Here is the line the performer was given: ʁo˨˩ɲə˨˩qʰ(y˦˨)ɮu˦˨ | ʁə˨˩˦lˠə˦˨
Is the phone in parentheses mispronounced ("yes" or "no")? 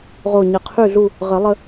no